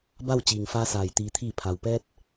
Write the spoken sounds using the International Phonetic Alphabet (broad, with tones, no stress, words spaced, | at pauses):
ba˥˨w t͡ɕiː˩ŋfaː˧saː˩j t̪iː˩t̪ʰiː˧˩ pʰa˩wpɛː˧t̚